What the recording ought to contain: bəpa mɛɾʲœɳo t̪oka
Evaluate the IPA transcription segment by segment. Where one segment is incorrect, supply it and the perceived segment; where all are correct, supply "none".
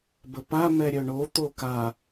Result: none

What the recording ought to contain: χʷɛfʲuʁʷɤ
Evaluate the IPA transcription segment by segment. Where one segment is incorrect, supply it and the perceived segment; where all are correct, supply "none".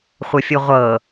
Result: ɛ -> ə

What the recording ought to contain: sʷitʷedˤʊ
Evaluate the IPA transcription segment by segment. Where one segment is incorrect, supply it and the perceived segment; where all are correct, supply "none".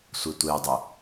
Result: none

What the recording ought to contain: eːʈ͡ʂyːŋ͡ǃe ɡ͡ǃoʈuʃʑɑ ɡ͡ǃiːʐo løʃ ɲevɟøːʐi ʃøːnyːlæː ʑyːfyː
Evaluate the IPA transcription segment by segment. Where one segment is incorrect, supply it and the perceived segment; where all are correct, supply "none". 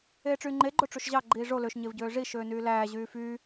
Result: ʈ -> ʈ͡ʂ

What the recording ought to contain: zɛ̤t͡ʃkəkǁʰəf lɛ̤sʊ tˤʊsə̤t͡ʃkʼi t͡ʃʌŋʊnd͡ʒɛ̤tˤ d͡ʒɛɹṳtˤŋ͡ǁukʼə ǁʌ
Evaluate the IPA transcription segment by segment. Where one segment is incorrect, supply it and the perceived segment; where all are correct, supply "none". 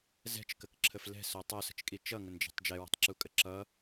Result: ŋ͡ǁ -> ǁ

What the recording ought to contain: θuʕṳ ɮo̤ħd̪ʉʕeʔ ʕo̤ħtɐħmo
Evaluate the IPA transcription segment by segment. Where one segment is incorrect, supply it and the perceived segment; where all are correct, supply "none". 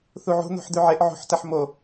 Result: ɮ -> n̪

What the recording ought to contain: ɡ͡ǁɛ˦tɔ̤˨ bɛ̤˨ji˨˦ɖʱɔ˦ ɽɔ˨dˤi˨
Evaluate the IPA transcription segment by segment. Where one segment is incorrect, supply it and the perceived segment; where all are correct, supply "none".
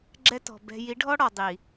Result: none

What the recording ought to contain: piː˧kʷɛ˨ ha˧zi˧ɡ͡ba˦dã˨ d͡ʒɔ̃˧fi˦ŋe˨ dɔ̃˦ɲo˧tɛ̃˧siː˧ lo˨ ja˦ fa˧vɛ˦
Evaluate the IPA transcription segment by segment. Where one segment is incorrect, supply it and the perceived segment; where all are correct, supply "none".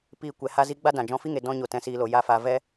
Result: none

